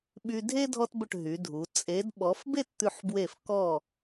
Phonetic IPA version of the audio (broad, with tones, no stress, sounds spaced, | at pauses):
ɓ y˧ dʱ e˥ dʱ ɔ˧ t b ɵ˧˩ ʈ ɦ y˩˧ dʱ u˩˧ t͡sʼ e˩˧ d ɓ ɔ˩˧ f b e˥˧ t t̪ ʉ˧˩ ħ b w e˧˩ f k ɔ˧˩